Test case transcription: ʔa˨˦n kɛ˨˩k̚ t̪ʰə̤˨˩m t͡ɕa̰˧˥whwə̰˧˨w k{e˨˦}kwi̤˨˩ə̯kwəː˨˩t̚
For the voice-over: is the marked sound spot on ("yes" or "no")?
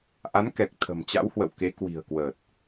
yes